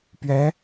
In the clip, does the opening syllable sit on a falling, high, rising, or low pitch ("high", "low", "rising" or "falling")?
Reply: rising